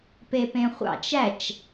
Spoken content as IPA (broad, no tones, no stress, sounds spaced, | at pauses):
p e p ẽ χʷ ɑ̰ t͡ʃ æ t͡ʃ